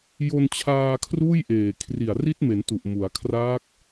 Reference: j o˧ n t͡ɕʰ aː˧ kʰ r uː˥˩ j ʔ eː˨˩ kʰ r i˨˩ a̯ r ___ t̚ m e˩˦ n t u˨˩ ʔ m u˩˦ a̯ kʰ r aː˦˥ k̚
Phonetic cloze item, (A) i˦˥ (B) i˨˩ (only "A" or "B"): A